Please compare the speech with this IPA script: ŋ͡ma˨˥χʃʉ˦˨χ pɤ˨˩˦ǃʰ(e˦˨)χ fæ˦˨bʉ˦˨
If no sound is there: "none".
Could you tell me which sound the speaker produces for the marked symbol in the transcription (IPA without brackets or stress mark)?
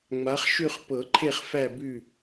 e˦˨